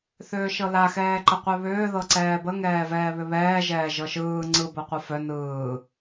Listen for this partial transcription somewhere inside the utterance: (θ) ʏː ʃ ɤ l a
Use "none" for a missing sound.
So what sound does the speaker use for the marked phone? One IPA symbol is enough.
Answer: θ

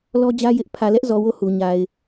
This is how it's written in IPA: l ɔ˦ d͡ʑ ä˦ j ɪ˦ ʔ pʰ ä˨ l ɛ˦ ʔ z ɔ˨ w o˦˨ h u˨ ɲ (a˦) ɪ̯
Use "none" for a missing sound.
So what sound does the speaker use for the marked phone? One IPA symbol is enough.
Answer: a˨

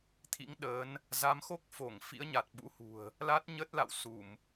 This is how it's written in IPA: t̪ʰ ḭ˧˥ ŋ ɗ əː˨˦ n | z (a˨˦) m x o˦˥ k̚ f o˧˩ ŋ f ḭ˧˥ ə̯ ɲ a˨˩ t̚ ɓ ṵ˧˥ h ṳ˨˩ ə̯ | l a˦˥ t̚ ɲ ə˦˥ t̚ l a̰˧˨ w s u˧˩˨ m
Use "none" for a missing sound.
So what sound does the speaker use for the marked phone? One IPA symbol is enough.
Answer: a˨˦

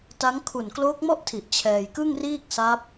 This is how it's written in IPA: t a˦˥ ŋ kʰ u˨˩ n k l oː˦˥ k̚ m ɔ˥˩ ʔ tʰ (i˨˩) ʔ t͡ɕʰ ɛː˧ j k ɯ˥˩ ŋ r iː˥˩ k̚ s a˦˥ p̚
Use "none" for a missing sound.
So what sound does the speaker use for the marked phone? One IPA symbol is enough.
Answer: i˨˩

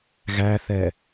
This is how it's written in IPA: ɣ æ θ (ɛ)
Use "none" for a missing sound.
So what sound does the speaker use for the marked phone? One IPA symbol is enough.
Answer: ɛ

